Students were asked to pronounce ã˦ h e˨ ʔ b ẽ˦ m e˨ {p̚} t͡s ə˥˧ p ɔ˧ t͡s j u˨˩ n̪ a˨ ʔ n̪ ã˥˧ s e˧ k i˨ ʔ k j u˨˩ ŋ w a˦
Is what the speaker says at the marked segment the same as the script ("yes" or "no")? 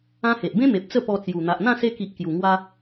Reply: yes